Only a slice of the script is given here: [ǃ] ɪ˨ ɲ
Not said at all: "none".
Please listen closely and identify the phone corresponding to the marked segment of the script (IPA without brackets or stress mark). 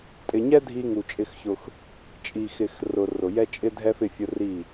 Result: tʼ